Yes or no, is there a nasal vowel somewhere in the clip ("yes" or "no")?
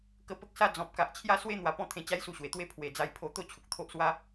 yes